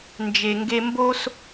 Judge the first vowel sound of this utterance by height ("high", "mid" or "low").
mid